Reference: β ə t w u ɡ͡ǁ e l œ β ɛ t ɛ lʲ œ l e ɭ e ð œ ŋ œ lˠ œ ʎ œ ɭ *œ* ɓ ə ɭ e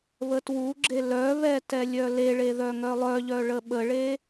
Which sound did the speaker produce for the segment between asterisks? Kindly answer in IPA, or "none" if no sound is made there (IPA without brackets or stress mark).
ə